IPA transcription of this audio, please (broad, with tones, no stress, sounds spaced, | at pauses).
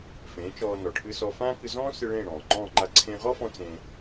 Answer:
f ẽː˩˥ t͡ʃ ɔː˧ n ɔ˩ ʈʰ ɨ˧ s ɔ˧ f ãː˥ k ɨ˧ z ɔ̃ː˥ s ɨ˧ ɭ ẽː˥˩ ɽ ɔ̃ː˩ ŋ͡ǃ ɔ̃ː˥˩ ŋ͡ǃ a˥˩ ǀʰ ẽ˧ ʁ ɔ˥ f ɔ̃˧ t͡s ẽ˧